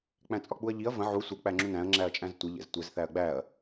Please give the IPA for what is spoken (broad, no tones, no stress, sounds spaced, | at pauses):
k͡p æ̃ t͡sʼ ɒ k͡p u ɐ̯ ʎ i ɐ̯ v ə̃ ʕ u sʷ ə k͡p æ ŋ͡ǁ ũ n æ̃ ɐ̯ ŋ͡ǁ æ ɐ̯ t͡ʃʼ æ̃ z tʷ ɪ ʎ ɛ̰ z tʷ ɛ z θ æ ɐ̯ ɡ͡b æ ɐ̯